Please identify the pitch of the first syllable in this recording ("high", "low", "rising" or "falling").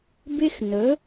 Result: high